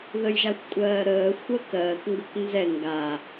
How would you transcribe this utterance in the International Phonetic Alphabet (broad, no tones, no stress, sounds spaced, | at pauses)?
ð ə j ʒ a xʷ kʷʼ ɜː ɾ əː xʷ əː k ɜː k ŋ ɡ ɤ k n z ɛ ŋ ɡ a